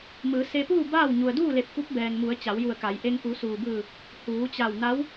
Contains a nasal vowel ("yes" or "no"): no